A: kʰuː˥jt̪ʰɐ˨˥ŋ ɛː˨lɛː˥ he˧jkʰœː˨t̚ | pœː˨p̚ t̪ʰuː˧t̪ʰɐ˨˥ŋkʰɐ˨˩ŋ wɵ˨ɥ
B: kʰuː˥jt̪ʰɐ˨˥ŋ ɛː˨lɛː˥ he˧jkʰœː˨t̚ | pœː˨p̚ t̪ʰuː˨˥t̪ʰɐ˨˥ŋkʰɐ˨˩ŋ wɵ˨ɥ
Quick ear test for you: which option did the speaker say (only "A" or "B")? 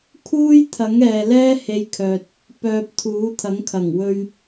B